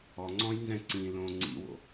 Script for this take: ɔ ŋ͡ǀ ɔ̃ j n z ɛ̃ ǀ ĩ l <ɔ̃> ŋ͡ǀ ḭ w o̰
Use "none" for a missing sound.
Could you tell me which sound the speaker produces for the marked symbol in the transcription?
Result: õ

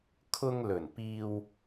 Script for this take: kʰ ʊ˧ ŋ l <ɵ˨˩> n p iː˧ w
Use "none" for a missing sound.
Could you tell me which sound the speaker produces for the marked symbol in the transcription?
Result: ɵ˨˩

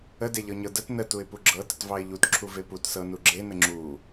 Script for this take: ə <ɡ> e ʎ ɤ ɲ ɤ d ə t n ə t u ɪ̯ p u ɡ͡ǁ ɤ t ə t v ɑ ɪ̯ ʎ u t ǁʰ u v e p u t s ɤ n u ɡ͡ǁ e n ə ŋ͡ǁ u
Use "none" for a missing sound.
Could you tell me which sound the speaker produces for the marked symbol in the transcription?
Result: d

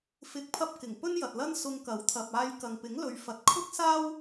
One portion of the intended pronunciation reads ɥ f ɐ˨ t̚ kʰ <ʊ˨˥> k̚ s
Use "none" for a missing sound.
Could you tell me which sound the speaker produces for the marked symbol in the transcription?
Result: ʊ˥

